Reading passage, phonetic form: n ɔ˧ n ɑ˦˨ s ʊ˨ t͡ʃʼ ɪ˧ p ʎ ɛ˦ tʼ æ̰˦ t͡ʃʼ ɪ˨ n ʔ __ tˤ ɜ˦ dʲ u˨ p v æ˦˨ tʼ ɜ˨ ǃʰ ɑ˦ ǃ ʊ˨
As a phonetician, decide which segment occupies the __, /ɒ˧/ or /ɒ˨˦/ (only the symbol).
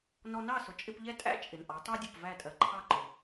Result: ɒ˨˦